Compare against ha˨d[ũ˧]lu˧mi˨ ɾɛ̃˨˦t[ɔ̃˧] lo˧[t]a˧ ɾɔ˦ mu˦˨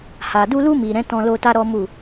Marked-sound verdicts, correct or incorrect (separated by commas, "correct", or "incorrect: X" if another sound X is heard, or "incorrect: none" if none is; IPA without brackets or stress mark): incorrect: u˧, correct, correct